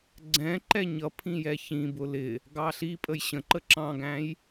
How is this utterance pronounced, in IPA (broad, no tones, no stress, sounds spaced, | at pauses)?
ɡ͡ǀ ɛ̃ ǃ ɛ ɲ ʌ pʰ ĩ j ɛ ç ĩ b ʊ l ɪ | ɡ ɑ ɬ i pʼ ə j ɕ ə̃ ǃ ə ǁ ɑ̃ ɡ æ̃ j